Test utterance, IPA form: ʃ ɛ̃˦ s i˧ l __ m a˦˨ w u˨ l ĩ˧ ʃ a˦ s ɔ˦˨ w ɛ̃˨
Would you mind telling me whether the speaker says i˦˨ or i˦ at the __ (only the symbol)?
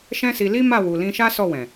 i˦